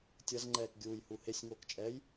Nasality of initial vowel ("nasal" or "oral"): oral